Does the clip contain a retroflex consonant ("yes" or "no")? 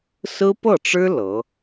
yes